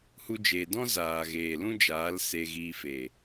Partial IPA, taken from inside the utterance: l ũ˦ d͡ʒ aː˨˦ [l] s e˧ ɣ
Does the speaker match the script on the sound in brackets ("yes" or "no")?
yes